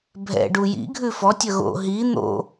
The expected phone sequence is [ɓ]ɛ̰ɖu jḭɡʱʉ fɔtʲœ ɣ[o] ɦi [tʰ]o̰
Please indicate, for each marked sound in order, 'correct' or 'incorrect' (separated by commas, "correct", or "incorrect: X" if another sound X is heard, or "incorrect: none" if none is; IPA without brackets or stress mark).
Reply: incorrect: bʱ, incorrect: o̰, incorrect: n̪